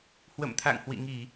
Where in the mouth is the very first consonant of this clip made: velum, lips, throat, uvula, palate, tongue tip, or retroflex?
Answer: throat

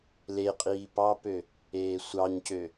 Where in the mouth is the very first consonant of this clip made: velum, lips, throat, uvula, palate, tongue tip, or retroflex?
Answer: tongue tip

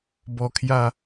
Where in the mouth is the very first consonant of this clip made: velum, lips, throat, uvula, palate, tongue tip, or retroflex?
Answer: lips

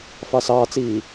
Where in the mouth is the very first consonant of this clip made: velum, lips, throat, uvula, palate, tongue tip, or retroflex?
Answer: lips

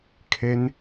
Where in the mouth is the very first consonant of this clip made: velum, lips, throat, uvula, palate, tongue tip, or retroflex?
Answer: velum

